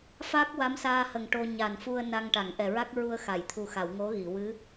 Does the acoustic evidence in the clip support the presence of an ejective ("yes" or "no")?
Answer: no